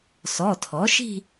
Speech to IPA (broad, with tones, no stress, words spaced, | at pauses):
sɔ˩˧˩tʰɔ˩˥ʃi̤˥˧